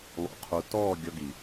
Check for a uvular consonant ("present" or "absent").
present